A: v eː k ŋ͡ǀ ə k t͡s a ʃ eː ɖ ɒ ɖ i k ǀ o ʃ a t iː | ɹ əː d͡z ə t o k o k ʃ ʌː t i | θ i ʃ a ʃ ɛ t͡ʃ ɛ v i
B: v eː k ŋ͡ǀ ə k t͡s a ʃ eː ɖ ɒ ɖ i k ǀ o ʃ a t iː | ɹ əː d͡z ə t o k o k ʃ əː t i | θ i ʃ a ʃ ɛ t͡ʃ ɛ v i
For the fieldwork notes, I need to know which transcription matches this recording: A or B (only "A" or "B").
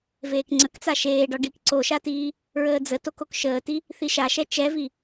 B